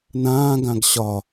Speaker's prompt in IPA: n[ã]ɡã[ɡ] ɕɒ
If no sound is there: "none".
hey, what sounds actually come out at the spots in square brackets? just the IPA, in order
ãː, ɡ

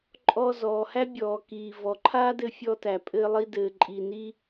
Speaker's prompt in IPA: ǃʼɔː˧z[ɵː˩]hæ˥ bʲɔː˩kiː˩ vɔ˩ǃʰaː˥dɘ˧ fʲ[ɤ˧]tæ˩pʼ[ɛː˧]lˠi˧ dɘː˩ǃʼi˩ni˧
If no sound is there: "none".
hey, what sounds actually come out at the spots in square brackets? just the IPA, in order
ɔː˩, ɔ˧, ɘː˧

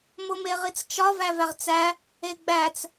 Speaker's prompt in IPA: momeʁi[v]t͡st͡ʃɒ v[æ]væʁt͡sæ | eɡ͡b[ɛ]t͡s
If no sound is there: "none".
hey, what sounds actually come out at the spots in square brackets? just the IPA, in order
none, æ, æ

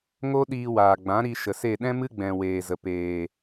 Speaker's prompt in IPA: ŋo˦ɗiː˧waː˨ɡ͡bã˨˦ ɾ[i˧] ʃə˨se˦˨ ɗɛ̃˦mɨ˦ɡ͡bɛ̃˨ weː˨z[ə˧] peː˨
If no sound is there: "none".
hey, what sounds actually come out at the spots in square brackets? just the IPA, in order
i˧, ə˨

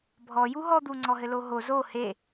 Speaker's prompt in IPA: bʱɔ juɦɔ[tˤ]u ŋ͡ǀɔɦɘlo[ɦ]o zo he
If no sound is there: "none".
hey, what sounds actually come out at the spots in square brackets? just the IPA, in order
d̪, ɦ

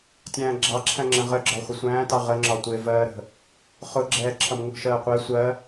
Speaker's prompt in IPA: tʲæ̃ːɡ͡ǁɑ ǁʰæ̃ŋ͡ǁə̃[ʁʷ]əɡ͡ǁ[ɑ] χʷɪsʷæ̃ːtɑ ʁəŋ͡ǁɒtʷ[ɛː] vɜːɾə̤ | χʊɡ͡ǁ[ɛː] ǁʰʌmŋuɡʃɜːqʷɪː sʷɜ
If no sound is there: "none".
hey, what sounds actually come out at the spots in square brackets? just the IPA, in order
ʁ, ɒ, ɪː, ɛː

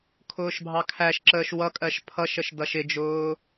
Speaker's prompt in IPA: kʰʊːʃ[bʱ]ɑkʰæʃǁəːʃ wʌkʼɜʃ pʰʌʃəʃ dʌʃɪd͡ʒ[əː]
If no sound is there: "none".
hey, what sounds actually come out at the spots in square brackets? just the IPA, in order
bʱ, ʊː

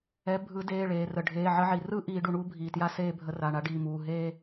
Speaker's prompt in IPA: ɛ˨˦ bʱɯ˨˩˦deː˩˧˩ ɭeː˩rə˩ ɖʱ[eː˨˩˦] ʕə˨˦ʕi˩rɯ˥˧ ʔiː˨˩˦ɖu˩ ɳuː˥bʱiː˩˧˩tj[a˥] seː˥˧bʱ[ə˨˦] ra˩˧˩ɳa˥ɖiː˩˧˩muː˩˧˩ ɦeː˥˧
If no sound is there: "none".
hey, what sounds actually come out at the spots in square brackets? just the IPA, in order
eː˩˧˩, a˥˧, ə˨˦

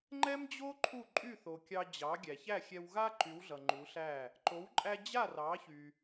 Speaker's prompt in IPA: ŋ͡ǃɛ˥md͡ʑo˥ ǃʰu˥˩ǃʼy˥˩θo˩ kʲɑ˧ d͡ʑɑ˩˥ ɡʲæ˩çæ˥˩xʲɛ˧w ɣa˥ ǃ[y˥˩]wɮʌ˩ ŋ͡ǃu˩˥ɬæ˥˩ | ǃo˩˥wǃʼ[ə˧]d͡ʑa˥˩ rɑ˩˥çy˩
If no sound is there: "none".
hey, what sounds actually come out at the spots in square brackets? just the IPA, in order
y˩˥, æ˧

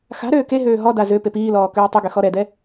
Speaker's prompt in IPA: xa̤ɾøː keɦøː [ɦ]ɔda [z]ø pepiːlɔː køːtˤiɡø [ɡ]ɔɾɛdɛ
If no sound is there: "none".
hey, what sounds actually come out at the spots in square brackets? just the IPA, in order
ɦ, z, x

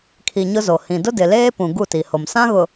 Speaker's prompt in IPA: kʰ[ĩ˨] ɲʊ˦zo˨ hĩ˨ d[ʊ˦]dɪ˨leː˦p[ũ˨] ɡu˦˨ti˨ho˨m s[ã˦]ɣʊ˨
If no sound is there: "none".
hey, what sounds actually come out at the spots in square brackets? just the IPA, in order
i˨, ʊ˦, ũ˨, ã˦

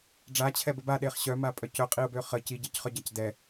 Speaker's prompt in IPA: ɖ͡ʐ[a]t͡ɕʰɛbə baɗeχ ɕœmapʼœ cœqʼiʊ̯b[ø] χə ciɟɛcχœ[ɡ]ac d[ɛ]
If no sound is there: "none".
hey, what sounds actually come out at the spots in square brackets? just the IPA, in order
a, ø, ɟ, ɛ

